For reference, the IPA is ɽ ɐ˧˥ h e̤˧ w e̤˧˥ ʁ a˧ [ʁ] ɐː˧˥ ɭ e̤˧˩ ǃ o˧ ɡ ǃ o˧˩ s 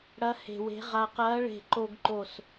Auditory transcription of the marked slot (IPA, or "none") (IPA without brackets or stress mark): q